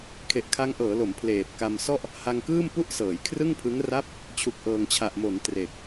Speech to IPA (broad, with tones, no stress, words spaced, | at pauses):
kʰe˨˩ʔkʰa˦˥ŋʔɤː˩˦ lo˩˦m pʰleː˨˩p̚ka˧msɔ˥˩ʔ | ha˧ŋkɯː˥˩m pu˥˩ʔsɤː˩˦jkʰrɯ˥˩ŋpʰɯ˦˥ŋ ra˦˥p̚ | t͡ɕʰu˨˩k̚ʔɤː˨˩ŋt͡ɕʰa˨˩ʔ mo˩˦n tre˨˩k̚